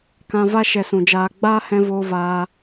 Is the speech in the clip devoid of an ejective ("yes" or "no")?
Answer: yes